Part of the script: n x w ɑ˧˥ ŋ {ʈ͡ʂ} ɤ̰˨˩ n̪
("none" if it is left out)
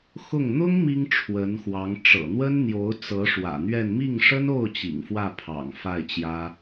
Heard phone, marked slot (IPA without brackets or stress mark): ʈ͡ʂ